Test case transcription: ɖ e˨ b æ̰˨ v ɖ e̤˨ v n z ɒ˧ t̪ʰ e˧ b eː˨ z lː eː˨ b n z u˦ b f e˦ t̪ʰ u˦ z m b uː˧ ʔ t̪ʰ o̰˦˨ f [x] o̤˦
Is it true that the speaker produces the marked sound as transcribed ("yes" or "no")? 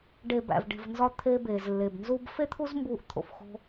yes